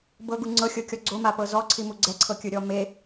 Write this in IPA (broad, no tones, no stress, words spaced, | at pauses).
bɤɡu ŋ͡ǀɤxʲɤkʲɔ ɡ͡ǀomapɤ zɔǀʰimu ɡ͡ǀɛǀʰɤkʲɯɾʲɔ me